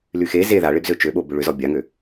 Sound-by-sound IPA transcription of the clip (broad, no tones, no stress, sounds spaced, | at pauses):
l y x e z e ð a ɭ e b z ø t͡ʃ ø ɓ o b ʏ ɭ ʏ z ɔ bʲ a ŋ ø